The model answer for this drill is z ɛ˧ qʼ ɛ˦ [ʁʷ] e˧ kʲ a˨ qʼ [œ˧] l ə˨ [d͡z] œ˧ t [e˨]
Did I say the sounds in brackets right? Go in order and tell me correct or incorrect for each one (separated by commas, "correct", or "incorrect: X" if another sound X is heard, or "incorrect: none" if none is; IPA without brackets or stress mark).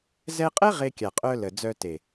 incorrect: ʁ, correct, correct, correct